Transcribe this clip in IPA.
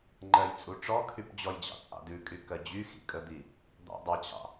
ŋ͡ǃ ɜ j t͡sʼ u ʈ͡ʂ ɔ kʰ y p d͡ʑ ɔ j d͡ʑ ɑ̰ t͡sʼ ɑ̰ d ʉ kʼ y k ɜ d͡ʑ y x ḭ kʼ ə d̪ i | d̪ ɑ̰ dˤ a t͡ɕ ɑ̰

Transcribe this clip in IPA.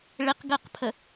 ɭ ɪ q ɡ ɜ q pʰ ə

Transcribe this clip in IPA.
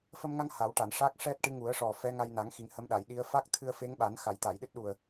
f ə˧ m ŋ a˧ ŋ h a˨˩˦ w ʈ a˨˩˨ n ʂ a˦˥ k̚ ʂ ɛ˦˥ t̚ ʈ ɨ˧˥ ŋ u˨˩˦ ə̯ ʂ ɔ˨˩ f ɛ˧˥ ŋ a˧ j n a˨˩˦ ŋ x i˨˩˦ ŋ h ə˧˥ m ɗ a˨˩˨ j ɗ i˧˥ ə̯ f a˦˥ k̚ t̪ʰ ɨ˧ ə̯ f e˧˥ ŋ ɓ a˨˩˦ n x a˨˩˨ j t̪ a˨˩˨ j ɗ ɨ˦˥ t̚ ɗ u˨˩ ə̯

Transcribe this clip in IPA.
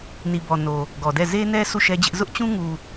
n i˨ b ɔ˨ n o˨ | ɡ ɔ˨ d ɛ˦˨ z e˦ n ɛ˦ sʰ u˦˨ ʃ ɛ˦ d͡ʑ ɪ˦ ʔ z ʊ˦ ʔ t͡ɕ ũ˦ ŋ u˨

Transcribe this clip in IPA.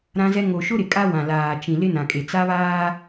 ɾ ã˦ z ɛ˦ ŋ o˨ ʃ ʊ˦ ɾ ɪ˨ kʼ a˦ w ã˨ l aː˨ t͡ʃ ĩ˨ l ɪ˦ n ã˨ kʼ e˨ t͡s a˦ β aː˦

